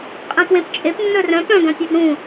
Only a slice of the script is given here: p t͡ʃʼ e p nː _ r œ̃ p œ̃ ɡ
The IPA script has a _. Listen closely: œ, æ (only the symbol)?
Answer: œ